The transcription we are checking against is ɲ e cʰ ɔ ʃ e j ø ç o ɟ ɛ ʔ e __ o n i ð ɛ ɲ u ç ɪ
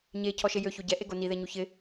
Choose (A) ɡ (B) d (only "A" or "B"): A